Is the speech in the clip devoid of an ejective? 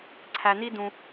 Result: yes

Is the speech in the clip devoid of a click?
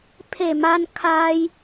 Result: yes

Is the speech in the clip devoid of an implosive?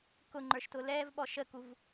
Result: no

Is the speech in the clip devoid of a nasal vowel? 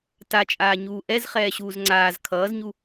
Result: yes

